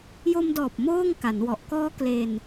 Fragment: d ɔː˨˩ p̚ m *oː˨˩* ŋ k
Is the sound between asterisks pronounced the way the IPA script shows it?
no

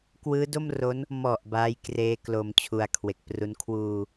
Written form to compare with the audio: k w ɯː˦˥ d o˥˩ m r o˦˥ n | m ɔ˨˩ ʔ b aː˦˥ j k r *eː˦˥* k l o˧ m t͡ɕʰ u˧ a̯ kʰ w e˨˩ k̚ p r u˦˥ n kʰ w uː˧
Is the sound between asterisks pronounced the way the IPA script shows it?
yes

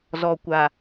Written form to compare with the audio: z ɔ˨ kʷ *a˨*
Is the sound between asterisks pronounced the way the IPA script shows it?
yes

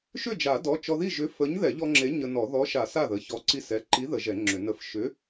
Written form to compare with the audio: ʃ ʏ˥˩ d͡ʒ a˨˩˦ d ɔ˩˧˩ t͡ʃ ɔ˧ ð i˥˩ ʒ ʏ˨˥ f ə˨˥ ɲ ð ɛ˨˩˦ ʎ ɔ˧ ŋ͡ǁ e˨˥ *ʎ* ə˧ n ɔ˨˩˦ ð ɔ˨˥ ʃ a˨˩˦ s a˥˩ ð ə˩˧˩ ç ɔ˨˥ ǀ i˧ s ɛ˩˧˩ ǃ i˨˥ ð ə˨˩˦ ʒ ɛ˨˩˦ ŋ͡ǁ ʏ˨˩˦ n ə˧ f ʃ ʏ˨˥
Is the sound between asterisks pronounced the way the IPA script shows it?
no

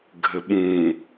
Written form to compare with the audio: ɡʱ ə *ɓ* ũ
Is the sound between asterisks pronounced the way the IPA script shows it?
yes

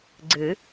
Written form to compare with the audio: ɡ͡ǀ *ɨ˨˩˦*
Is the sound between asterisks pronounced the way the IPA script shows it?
yes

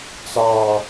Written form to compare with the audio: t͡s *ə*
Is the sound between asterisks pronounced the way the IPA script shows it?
no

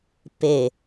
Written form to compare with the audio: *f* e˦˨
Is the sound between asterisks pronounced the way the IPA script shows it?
no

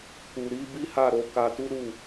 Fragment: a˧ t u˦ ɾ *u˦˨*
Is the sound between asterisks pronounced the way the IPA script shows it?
yes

